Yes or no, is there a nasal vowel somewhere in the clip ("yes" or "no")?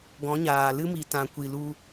yes